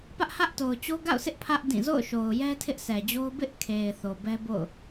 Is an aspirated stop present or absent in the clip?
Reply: present